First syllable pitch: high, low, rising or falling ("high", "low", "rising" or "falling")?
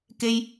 high